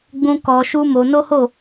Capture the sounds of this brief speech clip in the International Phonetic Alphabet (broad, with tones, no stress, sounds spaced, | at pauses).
ɡ͡b ũ˧ k ɔ˧ ʃ u˦ m o˧ n o˦ h o˦˨